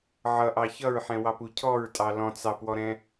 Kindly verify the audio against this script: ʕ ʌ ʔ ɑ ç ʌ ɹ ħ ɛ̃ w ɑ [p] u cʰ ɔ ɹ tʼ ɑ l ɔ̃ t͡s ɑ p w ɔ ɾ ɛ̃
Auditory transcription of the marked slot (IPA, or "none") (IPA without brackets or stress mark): p